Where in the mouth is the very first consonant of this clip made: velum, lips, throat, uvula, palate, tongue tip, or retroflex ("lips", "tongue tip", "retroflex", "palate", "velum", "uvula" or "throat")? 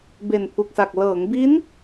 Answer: lips